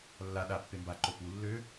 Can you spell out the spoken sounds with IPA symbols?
lː a ɗ a pː e m b a ǃ o p u lː ø

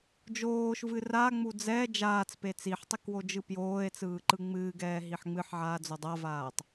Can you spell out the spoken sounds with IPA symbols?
d͡ʒ oː ʃ v ɨ r a ŋ͡m u d͡z ɛ d͡ʒ aː t͡s p e t͡s i ħ tˤ i k w o d͡ʒ ɯ p j oː e̯ t͡s ɯː ǃ ɯ ŋ͡m ɨː ɡ ɛː ɦ i ħ ŋ͡m ɨ ħ ʕ aː d͡z o dˤ a v aː tˤ

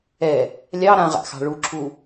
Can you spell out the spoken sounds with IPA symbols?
ɛ | lʲ ɑ ɾ ã ʁ a̰ x ɑ̤ ɭ u ǁʰ u

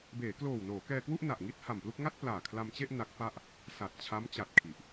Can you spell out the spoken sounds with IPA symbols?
b eː˩˦ k l oː˨˩ w n oː˩˦ k ɛː˧ k w u˥˩ ʔ n a˨˩ ʔ ŋ i˥˩ t̚ h a˨˩ m p l u˥˩ k̚ ŋ a˥˩ t̚ p l aː˨˩ kʰ l a˧ m t͡ɕ e˥˩ ʔ n a˦˥ k̚ p a˥˩ ʔ | s a˨˩ t̚ t͡ɕʰ a˦˥ m t͡ɕ a˨˩ t̚ kʰ i˨˩ ʔ

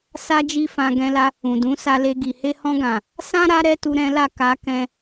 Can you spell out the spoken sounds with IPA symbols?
s a˦ d͡ʒ i˦ f ã˧ ɡ ɛ̃˧ l a˧ | ũ˨ d ũ˨˦ s a˧ l e˧ ɡ i˨ h e˧ h ɔ̃˧ ɡ ã˨ | s ã˦ ɾ a˦ ɾ ɛ˦ t u˧ ɾ ɛ̃˦ l a˦˨ k a˧ k ɛ̃˧

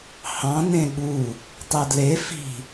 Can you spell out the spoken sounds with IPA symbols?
h ɑ̃ n ẽ ɠ u | tˤ e d l e f i̤

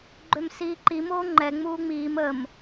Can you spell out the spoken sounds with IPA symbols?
ɡ͡ǃ ø m s iː ǃ i m oː ŋ͡ǃ ɛ ŋ͡m uː ŋ͡m iː m ə m

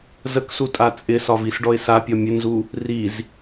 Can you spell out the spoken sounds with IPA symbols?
z ə k s u tʼ a t͡sʼ ɪ s ɒ v i s ɖ ɔ ɪ̯ s a pʲ ɒ mʲ ɘ n z u | r i z

